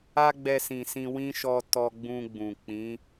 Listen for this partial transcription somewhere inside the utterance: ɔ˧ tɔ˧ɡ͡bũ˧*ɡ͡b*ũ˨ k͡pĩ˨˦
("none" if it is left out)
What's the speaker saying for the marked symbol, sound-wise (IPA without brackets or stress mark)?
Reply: ɡ͡b